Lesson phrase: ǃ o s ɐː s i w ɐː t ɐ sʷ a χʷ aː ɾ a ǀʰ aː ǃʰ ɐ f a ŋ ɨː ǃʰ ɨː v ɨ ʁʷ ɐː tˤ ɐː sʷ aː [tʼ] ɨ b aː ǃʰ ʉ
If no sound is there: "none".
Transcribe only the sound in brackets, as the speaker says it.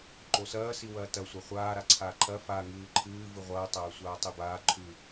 tˤ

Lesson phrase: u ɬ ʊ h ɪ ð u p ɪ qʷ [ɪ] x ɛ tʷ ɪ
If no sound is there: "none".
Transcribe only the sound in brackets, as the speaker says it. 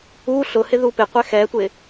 ɛ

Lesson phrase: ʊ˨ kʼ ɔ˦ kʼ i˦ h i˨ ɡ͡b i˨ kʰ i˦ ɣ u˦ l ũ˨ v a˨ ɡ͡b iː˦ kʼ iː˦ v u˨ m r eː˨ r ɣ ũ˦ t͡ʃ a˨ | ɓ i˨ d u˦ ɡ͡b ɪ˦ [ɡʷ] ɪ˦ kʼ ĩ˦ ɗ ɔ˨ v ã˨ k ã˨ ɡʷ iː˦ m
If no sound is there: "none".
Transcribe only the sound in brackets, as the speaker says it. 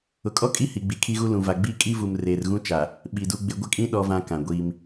ɡʷ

